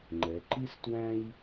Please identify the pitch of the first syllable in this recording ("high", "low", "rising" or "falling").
rising